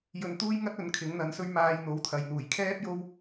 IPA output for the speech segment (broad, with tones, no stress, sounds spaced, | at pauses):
j ɵ˨ n t̪ uː˥ j ŋ ɐ˥ t̚ ɵ˨˥ n kʰ ɪ˨˥ ŋ n̪ ɐ˨˥ n s ɵ˥ ɥ m aː˧ j n̪ o˨˥ w t̪ʰ ɐ˨ j n̪ uː˨˩ j kʰ ɛː˥ p̚ j o˥ w